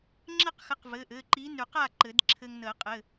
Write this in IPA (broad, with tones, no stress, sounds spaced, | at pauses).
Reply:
ŋ͡ǁ ɘ˥˨ q x ɘ˨˥ q v ɘ˩˧˩ ʔ ɘ˩˧˩ ǃ i˨˥ n ʉ˨˩˦ q a˥˨ ǃ ɘ˨˩˦ d ǁʰ ɘ˧ ŋ n ə˨˩˦ qʼ ɘ˩˧˩